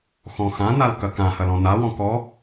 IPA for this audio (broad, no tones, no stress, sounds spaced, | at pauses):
x ɔ̃ x ã n a l k ɐ k ã h ɐ l ɔ̃ n a w ɔ̃ k ɔ